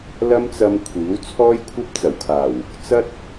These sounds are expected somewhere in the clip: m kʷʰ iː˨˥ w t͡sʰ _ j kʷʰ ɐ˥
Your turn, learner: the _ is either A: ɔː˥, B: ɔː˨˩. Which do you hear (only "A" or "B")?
A